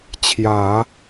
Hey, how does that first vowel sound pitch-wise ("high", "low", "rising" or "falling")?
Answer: low